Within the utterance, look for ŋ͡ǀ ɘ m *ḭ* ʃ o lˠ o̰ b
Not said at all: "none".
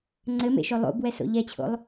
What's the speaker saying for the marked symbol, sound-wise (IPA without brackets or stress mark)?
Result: ḛ